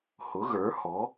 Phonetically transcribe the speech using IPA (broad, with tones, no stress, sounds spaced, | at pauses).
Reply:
h ʊ˩˥ ɣ ə˞˩˥ h ɔ˩˥